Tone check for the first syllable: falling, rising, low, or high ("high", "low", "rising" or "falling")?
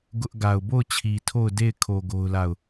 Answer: high